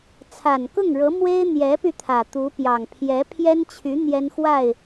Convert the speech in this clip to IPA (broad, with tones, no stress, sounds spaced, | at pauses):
t͡sʰ a˨˩ n k ʊ˥˩ ŋ ɻ ɤ˧˥ m w e˥ ɪ̯ n̪ j ɛ˧˥ p y˧ t̪ʰ ä˨˩ t̪ u˧˥ p j ɑ˨˩ ŋ pʰ j ɛ˧˥ pʰ j ɛ˥ n t͡ɕʰ y˧˥ n̪ j ɛ˥ n x w a˥˩ ɪ̯